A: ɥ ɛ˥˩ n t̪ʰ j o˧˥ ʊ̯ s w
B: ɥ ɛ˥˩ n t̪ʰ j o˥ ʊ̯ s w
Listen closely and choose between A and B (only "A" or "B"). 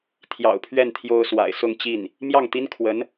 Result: B